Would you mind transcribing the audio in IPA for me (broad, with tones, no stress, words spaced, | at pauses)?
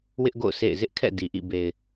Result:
wɪ˦ʔɡo̰˦˨ʊ̯ sḛ˦˨ɪ̯ zɪ˦ʔkʰɛ̰˦˨ di˨ʔḭ˦˨ be˨ɪ̯